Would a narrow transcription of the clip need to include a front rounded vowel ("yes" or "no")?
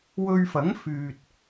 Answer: yes